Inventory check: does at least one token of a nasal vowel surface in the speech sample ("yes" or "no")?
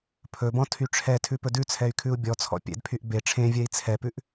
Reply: yes